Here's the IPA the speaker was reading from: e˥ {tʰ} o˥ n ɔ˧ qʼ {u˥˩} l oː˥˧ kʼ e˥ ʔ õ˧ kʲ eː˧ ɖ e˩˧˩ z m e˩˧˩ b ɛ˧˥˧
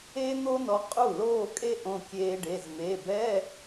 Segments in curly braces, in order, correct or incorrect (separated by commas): incorrect, correct